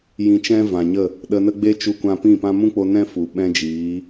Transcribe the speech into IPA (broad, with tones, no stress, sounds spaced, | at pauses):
j ĩ˧ t͡ʃ ɛ̃˦ v ã˨ ɲ ə˦˨ | ɗ ə˧ n ə˦ ɡ͡b e˦ t͡ʃ u˦ kʷ ã˦ p ĩ˦˨ p ã˦ m ũ˦ k͡p o˧ n ɛ̃˦ f u˨ ɓ ɛ̃˦ d͡ʒ iː˨˦